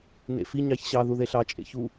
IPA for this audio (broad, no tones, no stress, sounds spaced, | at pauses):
n ḛ f i ɲ ɑ ç ɕ ɑ ð u ð e ɬ ɑ t͡ʃʼ ḛ ç u